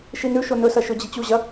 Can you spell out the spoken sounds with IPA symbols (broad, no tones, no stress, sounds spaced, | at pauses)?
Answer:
ʃ i n ʉ ʃ o n ɵ s ɐ ʃ ɵ d͡ʑ i t͡ɕ u ʑ ɐ